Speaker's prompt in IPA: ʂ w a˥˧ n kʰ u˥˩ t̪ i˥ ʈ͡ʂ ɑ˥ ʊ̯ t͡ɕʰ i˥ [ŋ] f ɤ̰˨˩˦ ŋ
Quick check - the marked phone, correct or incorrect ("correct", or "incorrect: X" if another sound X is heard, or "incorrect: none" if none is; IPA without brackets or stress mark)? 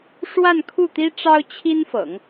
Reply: incorrect: n